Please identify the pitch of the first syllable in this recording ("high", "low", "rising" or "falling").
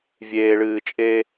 low